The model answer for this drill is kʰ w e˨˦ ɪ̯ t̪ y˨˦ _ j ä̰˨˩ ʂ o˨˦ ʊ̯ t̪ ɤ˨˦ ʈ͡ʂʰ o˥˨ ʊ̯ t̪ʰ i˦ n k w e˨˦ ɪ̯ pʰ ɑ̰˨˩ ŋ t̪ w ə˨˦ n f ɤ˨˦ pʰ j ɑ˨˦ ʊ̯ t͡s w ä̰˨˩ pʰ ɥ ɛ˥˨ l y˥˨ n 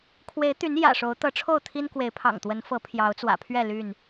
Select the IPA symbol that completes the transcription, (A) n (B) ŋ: A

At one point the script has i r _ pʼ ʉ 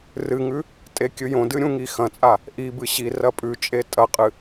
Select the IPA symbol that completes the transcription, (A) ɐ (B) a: A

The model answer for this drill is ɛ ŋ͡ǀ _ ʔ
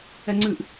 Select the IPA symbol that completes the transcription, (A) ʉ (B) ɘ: A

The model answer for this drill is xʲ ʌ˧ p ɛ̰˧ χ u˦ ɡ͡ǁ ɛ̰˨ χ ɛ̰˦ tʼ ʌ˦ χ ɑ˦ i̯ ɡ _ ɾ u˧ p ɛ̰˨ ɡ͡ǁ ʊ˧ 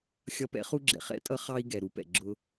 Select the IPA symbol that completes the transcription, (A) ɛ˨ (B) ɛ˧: A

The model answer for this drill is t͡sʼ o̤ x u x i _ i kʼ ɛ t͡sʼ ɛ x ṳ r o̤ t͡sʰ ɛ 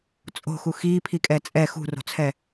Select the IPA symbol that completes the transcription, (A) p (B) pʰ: B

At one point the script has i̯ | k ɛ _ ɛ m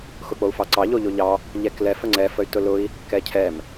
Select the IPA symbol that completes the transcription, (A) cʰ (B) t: A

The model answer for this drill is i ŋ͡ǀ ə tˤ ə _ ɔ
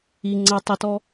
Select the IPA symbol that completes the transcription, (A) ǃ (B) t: B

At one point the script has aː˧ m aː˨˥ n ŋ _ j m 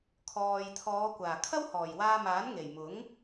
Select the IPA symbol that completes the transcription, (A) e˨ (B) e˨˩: B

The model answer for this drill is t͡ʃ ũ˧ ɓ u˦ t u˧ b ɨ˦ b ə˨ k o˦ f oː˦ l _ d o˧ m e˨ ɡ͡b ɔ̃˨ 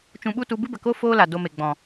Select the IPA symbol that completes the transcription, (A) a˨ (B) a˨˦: A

